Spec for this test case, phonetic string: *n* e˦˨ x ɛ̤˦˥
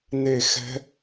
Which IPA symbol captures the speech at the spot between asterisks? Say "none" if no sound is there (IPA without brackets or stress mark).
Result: n